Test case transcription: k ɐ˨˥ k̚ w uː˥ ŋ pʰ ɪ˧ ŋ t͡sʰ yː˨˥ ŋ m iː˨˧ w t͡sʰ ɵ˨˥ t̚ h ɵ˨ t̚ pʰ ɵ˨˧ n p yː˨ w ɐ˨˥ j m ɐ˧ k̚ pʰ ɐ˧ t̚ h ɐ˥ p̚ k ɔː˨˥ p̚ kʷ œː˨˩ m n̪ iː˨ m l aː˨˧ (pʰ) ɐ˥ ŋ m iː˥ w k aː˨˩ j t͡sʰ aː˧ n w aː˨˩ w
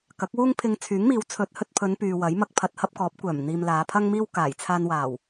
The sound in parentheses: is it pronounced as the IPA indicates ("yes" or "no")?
yes